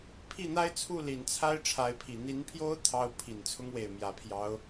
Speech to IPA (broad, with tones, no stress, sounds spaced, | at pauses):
pʰ i˥˩ n̪ a˥ ɪ̯ t͡sʰ u˥˩ l i˨˩ n t͡sʰ a˥ ɪ̯ ʈ͡ʂʰ a˧˥ ɪ̯ pʰ i˨˩ n̪ i˧˥ n pʰ j o˥ ʊ̯ t̪ʰ ɑ˥ ʊ̯ pʰ i˨˩ n t͡sʰ ʊ˥ ŋ w e˥˩ ɪ̯ m j ä˧˥ pʰ j ɑ˧˥ ʊ̯